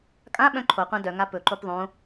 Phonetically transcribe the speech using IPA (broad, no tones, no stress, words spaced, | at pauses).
kʼãɓœ̃ ǃʰoqʷã dœ ŋapɵǃop ðˤõ